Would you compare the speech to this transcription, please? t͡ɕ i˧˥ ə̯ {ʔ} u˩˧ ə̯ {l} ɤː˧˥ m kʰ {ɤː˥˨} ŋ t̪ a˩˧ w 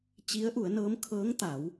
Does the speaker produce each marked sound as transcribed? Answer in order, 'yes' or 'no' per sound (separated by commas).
yes, no, no